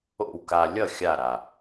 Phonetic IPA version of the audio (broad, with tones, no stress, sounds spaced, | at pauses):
o̰˥˩ w k a˧ lʲ ʌ˥˩ xʲ a˥˩ ɾ a˩